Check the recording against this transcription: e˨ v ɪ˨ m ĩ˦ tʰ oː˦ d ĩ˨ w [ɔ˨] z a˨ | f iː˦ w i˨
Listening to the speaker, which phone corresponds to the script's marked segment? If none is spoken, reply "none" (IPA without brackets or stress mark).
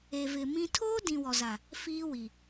ɔ˨